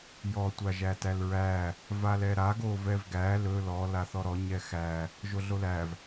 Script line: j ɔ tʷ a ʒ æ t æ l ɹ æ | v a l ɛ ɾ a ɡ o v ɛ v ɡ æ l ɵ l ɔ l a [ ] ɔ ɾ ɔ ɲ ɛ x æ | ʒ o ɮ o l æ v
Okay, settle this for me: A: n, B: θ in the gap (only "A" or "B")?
B